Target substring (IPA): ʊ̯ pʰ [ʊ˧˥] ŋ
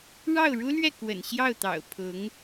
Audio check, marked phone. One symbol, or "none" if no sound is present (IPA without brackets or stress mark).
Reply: ʊ˧˥